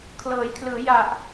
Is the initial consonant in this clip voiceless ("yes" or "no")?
yes